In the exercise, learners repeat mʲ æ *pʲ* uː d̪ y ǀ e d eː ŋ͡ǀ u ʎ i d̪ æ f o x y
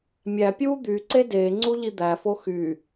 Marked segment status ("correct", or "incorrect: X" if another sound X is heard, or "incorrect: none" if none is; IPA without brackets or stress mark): correct